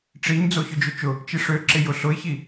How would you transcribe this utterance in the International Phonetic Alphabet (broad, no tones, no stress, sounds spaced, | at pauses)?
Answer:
ʈ͡ʂ i ɲ d͡z o ç ʊ d͡ʒ ø t͡ʃ ʊ | t͡ʃ i ʂ ø ǁ ɪ j ʊ ɬ ʊ ɪ̯ ç i